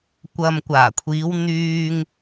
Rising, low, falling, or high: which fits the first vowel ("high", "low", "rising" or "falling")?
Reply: low